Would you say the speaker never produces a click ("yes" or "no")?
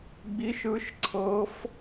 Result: no